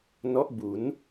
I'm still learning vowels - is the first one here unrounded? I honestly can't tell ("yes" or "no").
no